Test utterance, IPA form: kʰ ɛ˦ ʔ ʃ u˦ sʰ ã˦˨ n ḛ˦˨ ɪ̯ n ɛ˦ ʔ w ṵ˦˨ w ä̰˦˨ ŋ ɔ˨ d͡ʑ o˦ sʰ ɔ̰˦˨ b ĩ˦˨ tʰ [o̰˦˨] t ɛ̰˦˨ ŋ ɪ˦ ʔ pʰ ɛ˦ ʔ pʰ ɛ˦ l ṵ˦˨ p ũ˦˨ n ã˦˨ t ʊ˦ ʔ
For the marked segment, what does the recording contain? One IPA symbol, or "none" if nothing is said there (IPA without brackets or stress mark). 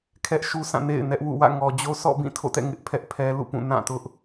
o̰˦˨